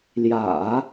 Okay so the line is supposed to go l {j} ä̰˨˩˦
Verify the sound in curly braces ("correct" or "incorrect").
correct